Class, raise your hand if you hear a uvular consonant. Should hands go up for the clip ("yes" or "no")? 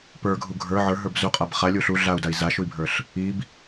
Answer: yes